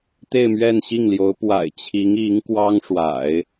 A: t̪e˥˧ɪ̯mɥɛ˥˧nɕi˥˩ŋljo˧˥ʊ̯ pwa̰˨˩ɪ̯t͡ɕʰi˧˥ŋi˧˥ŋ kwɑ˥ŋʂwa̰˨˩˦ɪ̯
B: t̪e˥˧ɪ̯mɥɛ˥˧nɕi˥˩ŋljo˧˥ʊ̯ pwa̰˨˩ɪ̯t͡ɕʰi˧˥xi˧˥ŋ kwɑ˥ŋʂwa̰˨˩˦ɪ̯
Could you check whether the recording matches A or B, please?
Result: A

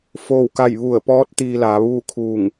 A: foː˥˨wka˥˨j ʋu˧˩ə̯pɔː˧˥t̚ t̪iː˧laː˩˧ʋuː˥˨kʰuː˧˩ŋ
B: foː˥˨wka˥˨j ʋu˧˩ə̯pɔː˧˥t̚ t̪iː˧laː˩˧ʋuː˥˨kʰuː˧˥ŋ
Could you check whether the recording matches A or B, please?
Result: A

